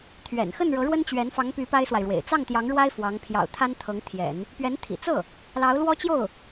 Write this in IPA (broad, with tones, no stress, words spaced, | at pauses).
t̪ʰɥɛ̰˨˩n xə˥˩nɻɤ˧˥ɻwə˥nt͡ɕɥɛ˧˥n fɑ˧˥ŋpy˧˥ pa˥ɪ̯swa˨ɪ̯ɻwḛ˨˩ɪ̯ t͡sɑ˥˩ŋt̪jɑ˧˥ŋɻwa˥ɪ̯ fwɑ˧˥ŋ pʰjɑ̰˨˩ʊ̯t̪ʰa˥n t̪ʰɤ˧˥ŋt̪ʰjɛ̰˨˩˦n | pɥɛ˧˥nt̪ʰḭ˨˩t͡sɤ˥˩ | lɑ˧˥ʊ̯lwɔ˥t͡ɕjo˥˩ʊ̯